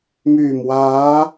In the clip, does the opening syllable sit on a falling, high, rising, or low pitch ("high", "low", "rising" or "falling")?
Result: low